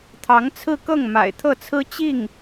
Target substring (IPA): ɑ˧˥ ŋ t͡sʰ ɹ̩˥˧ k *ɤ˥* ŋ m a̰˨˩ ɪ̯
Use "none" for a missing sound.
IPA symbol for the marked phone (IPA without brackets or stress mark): ɤ˥˩